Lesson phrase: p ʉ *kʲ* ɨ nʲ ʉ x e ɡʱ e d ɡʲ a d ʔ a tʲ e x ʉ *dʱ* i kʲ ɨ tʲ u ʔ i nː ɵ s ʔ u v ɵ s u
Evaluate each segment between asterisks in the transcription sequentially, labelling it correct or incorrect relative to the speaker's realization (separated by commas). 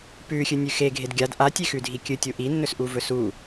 incorrect, correct